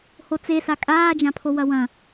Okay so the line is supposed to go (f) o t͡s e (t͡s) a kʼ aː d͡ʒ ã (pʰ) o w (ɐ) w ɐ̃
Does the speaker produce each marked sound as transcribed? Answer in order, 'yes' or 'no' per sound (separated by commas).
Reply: no, no, yes, yes